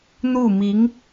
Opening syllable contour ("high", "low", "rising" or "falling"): falling